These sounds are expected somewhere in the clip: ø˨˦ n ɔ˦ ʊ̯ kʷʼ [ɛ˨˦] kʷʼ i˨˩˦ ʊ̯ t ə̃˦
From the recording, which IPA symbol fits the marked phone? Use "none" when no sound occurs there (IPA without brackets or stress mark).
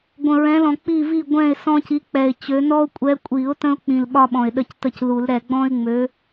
ɛ˨˦